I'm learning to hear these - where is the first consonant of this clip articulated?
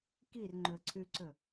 velum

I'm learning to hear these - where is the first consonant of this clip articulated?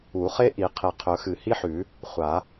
uvula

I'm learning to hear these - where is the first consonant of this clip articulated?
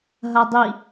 throat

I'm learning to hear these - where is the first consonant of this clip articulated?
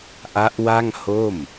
throat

